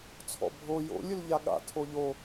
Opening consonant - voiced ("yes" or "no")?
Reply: no